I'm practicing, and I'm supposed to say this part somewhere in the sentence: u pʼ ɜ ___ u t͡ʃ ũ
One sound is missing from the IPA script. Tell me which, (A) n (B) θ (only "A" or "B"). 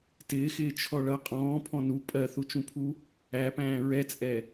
B